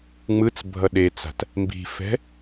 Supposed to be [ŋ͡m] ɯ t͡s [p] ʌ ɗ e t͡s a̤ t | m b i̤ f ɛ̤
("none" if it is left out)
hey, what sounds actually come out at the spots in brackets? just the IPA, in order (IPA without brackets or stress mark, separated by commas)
ŋ͡m, bʱ